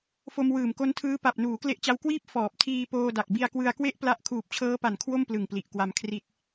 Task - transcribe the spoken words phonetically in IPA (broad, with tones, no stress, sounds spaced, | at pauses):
f o˧ m w ɯː˨˩ m k o˦˥ n tʰ ɯː˦˥ p a˨˩ p̚ n uː˩˦ k l e˦˥ ʔ t͡ɕ a˦˥ w k w iː˥˩ p̚ f ɔː˨˩ p̚ tʰ iː˧ p oː˧ d a˨˩ k̚ b i˧ a̯ k w ɯ˧ a̯ k w e˥˩ ʔ p l a˦˥ ʔ kʰ uː˨˩ p̚ t͡ɕʰ ɤː˦˥ p a˨˩ n kʰ w o˥˩ m p l ɯ˨˩ ŋ p l i˨˩ ʔ k w a˧ m kʰ r i˦˥ t̚